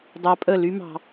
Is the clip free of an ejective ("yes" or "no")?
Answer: no